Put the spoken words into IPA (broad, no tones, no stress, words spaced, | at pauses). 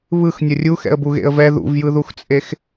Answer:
βɯxnʲʌ rʲuxɛ̰ə̯buɣḛə̯ vɛ ðṵvjɯðuxt͡sʼex